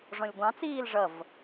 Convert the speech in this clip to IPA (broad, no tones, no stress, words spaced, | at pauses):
ʐɔ̃lʲɡʷɑ̃t͡siːl ʐʌv